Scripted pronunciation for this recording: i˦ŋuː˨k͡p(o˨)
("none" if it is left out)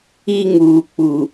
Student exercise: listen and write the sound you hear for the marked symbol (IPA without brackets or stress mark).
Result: u˨